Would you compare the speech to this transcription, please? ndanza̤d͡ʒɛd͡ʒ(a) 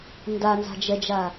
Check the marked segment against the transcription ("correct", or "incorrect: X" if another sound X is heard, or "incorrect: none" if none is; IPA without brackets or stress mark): correct